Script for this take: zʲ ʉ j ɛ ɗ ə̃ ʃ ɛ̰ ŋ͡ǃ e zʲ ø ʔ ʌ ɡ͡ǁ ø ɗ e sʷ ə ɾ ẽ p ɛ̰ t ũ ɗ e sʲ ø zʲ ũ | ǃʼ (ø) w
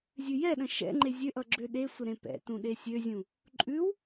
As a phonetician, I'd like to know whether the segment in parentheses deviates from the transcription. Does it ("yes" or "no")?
yes